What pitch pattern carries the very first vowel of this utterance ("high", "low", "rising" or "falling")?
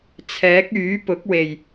rising